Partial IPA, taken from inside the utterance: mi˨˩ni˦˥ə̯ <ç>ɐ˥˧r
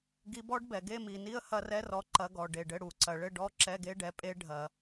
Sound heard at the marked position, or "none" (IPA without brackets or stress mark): h